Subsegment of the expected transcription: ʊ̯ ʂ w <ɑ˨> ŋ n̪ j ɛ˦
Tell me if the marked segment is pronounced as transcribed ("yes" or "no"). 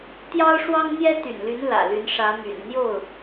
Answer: no